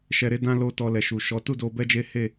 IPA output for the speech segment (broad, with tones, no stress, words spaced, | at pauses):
ʃɛ˧ɾe˦dã˦ lo˦˨ tɔ˧lɛ˨ʃu˨ʃɔ˨˦ tu˦˨do˧ bɛ˦d͡ʒe˦he˦˨